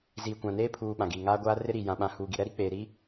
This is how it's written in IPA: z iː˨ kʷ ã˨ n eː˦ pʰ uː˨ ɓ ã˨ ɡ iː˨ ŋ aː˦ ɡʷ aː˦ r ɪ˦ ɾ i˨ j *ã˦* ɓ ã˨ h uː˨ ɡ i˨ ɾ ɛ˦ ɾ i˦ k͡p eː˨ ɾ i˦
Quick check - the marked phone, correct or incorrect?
incorrect